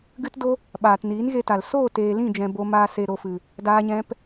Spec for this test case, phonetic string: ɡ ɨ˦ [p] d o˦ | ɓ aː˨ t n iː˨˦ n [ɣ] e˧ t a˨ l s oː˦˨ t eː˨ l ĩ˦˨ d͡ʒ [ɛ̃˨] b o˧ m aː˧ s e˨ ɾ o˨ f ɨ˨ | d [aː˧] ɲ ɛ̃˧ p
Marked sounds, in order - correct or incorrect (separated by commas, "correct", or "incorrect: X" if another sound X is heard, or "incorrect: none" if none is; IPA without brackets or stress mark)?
incorrect: t, correct, correct, correct